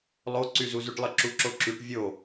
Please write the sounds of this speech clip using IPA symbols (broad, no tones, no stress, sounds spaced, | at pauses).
lˠ o ǀ y z u z y ʈ lˠ ə ǁ u ǁ o ǁ y ʈ vʲ o